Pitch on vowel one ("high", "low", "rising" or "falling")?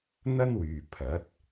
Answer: high